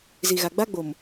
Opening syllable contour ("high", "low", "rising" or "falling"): low